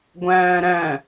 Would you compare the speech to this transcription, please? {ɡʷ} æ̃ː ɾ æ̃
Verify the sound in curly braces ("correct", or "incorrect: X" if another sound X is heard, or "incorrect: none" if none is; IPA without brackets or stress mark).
correct